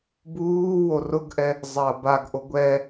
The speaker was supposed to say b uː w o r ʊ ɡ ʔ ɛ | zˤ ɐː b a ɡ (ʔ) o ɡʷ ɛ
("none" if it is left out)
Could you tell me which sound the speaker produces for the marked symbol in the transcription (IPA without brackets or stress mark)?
ʔ